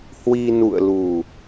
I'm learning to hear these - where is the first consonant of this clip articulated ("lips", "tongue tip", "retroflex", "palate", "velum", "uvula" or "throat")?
throat